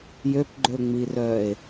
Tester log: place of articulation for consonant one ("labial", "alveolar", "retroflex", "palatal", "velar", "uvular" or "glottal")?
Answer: palatal